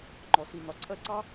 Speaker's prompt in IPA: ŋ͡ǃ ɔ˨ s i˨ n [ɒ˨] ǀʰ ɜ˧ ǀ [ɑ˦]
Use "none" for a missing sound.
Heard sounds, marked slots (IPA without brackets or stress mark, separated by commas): ɒ˨, ɑ˦